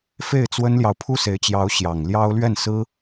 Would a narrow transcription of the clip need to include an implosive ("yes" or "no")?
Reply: no